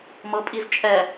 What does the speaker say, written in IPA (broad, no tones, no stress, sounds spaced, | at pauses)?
m ɤ pʼ i z t͡ʃʼ ɛ